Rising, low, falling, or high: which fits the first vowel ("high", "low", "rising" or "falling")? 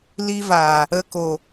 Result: high